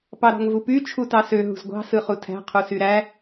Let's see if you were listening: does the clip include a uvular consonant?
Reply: yes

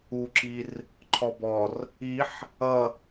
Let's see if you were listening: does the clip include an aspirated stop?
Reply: yes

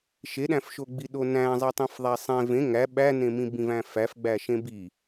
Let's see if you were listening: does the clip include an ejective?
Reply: no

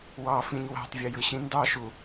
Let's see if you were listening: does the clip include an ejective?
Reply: no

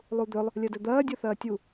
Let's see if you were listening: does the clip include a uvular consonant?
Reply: no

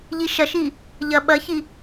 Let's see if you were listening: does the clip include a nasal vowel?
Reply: no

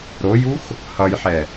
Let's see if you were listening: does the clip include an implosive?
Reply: no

